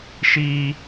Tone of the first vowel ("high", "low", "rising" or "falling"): high